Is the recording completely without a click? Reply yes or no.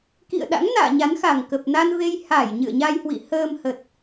yes